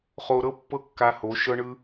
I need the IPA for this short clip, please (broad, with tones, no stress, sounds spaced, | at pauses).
χ o˧ ɾ ɤ˦ pː ɤ˦ kː a˧ h o˨˦ ʃ ɤ˦ ɳ ɯ˦